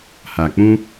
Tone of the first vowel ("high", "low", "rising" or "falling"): low